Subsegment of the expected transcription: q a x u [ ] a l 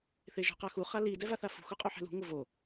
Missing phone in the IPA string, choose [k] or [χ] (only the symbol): χ